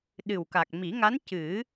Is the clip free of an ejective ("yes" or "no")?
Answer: yes